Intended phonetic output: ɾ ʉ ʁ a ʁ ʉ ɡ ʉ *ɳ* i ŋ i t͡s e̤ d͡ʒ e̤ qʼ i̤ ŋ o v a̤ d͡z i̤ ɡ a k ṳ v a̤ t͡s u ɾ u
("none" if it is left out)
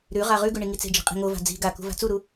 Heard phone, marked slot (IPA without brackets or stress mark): ɳ